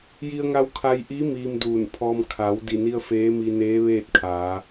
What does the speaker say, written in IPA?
ji˧ə̯ŋa˧w kʰa˧jʔi˧˥ miː˧mduː˧˩npʰɔː˧m kʰa˩˧w di˧˩ni˧ə̯ feː˧˥mi˧neː˧˥ʋeː˥˨t̚ kʰaː˩˧

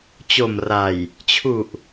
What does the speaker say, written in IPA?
t͡ɕo˨˩mra˨˩j | t͡ɕʰu˨˩ʔ

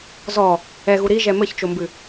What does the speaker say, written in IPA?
zɔ | ɛɣu ɾiʒɛ mɘçt͡ʃombɨ

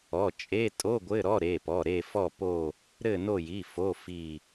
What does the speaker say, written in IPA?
ɔ˩˧˩t͡ʃʼe˧˥˧tʼo˧˥˧ ɡʷɘ˧˥˧ɾɔ˧˥˧ɾe˩˧˩pɔ˩˧˩ ɾe˦˨fɔ˦˨po˦˨ | ɾɘ˦˨no˦˨ji˩˧˩ fo˧˥˧fi˦˨

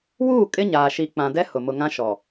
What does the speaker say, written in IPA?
wuː˦˨ kʼɪ˦ɲaː˨ ʃi˨ k͡pã˨dɛ˦ hʊ˨ mʊ˨ ŋã˦ʃɔ˨

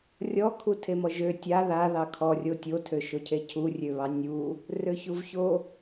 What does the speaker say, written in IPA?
rʲɔkʰu tʰemɔʒø tʲa ða ðɑkʰɔrʲo tʲotʰøʃocʰe cʰurʲøβɑ nʲu | røçuvço

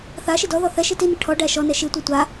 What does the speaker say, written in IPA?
θaʃi dɔðɔ θɛʃi tini ʈʰɔ ɖæʃɔnɛ ʃitʷɛ tʷa

